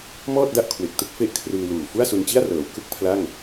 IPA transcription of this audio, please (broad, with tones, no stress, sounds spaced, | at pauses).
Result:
m ɔː˥˩ t̚ d a˥˩ ʔ kʰ w e˨˩ k̚ t ɯ˥˩ k̚ f e˥˩ ʔ kʰ r ɯː˧ l uː˨˩ f u˥˩ a̯ s u˧ n t͡ɕ i˥˩ a̯ r ɤː˩˦ w k ɯ˥˩ k̚ pʰ l a˥˩ ŋ